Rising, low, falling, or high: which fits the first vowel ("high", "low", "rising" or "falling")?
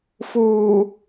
low